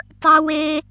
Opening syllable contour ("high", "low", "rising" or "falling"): high